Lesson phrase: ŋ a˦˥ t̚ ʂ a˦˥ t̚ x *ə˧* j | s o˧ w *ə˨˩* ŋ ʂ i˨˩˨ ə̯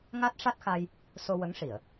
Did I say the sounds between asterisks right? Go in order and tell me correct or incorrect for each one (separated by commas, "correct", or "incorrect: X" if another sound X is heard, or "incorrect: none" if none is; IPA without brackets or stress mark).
incorrect: a˧, incorrect: ə˧˥